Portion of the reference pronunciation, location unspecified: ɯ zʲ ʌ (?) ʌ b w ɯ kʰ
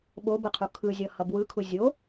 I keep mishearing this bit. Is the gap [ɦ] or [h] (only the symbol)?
h